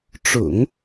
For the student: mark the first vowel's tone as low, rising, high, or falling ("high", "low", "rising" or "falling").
low